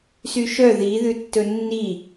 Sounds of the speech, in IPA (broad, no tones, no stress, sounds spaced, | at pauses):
s y ʃ œ ð i ð ʉ tː ɵ nː i